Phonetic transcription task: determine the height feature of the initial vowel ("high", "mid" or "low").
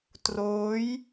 mid